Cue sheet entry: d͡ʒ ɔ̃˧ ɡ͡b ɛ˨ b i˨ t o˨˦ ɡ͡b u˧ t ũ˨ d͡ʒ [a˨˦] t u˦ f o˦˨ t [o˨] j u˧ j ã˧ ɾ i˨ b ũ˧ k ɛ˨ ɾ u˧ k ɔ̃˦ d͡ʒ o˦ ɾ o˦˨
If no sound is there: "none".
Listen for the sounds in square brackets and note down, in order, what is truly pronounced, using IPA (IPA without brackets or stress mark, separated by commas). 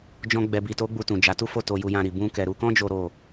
a˨˦, o˧